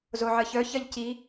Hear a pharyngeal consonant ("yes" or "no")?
yes